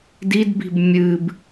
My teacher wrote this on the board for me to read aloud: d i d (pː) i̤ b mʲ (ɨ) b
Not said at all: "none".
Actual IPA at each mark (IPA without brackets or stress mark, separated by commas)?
b, ɨ